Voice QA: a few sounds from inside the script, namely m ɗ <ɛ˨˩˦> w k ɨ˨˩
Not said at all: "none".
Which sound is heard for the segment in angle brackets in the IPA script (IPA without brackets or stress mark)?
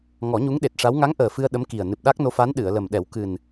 ɛ˨˩˦